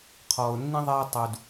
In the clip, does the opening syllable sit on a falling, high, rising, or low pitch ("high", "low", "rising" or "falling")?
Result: low